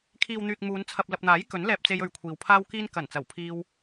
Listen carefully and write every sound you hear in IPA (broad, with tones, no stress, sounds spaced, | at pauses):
kʰ iː˨ w n̪ yː˨ k̚ m uː˨˧ n t͡sʰ ɐ˨ p̚ l ɐ˨ p̚ n̪ aː˨˥ j k ɵ˨˥ n l ɛː˧ p̚ t͡s e˧ j ɵ˧ ɥ kʷʰ iː˨ w pʰ aː˥ w k iː˥ n k ɐ˨˩ n t͡s ɐ˨˩ w pʰ iː˧ w